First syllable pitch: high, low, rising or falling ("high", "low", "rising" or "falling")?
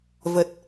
low